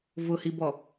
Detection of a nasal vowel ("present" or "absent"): absent